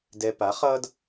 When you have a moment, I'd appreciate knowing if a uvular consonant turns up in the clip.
yes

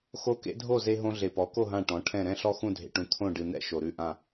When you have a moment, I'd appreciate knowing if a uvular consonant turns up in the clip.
no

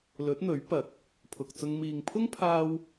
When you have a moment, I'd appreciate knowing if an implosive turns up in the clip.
no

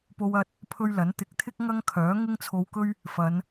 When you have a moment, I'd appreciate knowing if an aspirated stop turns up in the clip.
yes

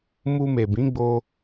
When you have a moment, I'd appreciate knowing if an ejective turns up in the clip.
no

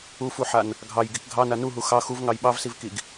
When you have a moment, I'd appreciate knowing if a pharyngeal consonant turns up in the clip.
yes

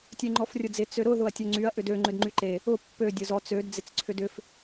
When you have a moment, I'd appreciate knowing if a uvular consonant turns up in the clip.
no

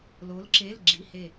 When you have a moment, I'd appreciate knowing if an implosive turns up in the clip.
no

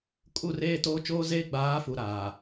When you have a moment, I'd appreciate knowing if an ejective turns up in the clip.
yes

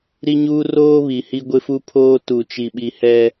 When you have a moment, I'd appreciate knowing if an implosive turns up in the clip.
yes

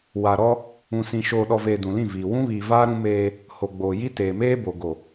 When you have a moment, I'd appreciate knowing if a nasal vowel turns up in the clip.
yes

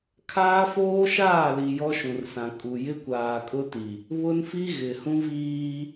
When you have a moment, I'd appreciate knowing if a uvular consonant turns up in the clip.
no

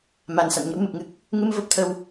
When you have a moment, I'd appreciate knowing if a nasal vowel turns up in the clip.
no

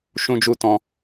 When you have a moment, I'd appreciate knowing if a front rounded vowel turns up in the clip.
no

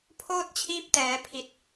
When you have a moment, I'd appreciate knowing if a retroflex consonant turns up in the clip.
no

